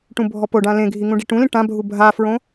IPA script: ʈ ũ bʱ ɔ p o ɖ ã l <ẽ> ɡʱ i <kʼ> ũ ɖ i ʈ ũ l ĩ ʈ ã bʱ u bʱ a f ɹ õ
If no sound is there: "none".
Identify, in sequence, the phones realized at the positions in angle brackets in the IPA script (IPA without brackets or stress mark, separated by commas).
ẽ, ŋ